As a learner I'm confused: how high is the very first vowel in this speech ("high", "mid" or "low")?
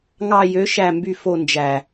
low